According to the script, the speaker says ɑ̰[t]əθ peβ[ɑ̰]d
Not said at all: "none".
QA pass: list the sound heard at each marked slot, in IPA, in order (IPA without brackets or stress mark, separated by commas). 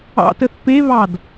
t, ɑ